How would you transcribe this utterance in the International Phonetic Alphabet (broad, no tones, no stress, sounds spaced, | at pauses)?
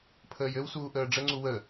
pʰ əː j ɘ w s uː ʔ əː ɖ͡ʐ ə ŋ͡ǀ u w ə